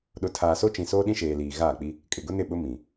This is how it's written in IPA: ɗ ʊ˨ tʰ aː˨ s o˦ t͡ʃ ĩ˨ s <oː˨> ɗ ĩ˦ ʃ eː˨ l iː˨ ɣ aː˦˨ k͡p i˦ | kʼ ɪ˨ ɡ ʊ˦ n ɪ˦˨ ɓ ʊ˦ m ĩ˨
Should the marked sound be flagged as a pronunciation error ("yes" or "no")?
yes